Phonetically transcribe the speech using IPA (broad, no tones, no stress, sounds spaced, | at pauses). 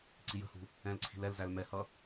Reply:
ǀ i j ə̤ h ṳ | ɛ̃ l ǀʰ i̤ l ɛ l z æ l m ɛ h ʌ